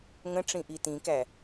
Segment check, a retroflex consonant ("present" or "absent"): present